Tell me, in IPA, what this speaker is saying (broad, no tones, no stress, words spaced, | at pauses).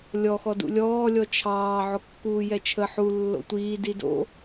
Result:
lʲɔxɔ dṵlʲɔːlʲɔ t͡ʃʰɑː ʕokːuːjɛt͡ʃʰə ħu lːo̰tʷiː dido̰